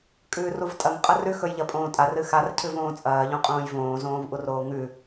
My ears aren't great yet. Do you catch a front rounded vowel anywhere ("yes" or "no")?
no